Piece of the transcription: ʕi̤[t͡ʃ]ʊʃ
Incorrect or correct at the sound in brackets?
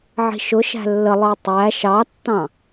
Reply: incorrect: ʃ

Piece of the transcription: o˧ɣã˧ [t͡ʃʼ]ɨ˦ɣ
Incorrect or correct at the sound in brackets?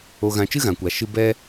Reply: incorrect: t͡ʃ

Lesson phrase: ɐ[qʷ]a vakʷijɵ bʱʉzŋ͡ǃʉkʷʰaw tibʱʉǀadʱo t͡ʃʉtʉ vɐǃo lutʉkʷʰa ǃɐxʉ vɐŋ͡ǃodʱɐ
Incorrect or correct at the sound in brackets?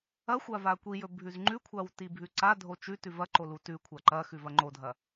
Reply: incorrect: xʷ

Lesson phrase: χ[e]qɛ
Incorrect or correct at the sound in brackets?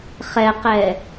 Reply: incorrect: ɛ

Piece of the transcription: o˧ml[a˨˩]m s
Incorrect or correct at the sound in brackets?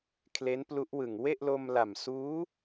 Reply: correct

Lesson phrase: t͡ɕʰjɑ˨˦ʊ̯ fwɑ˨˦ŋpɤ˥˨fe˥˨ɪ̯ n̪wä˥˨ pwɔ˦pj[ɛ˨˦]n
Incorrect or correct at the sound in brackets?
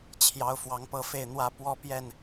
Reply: incorrect: ɛ˥˨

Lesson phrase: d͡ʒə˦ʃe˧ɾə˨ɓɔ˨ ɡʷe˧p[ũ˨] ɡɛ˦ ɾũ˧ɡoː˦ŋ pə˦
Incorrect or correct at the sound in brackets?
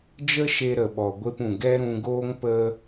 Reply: correct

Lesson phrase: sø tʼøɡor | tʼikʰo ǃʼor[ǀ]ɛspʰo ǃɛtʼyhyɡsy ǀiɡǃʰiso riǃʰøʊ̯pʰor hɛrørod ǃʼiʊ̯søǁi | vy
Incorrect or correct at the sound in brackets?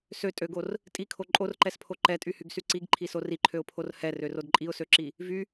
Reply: incorrect: ǃ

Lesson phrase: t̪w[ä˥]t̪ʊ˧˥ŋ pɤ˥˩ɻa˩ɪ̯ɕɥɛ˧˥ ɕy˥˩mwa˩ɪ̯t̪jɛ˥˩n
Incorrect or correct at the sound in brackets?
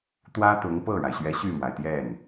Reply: correct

